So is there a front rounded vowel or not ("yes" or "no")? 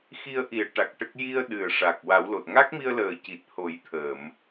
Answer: no